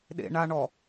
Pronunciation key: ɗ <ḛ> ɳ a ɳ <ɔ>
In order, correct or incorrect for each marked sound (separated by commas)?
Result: correct, correct